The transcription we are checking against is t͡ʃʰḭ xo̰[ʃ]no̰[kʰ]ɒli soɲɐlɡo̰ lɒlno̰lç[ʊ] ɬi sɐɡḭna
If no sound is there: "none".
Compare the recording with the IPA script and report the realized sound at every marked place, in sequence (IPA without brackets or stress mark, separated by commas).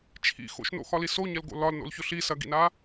ʃ, x, ʊ